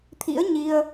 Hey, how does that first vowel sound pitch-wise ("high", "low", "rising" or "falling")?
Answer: rising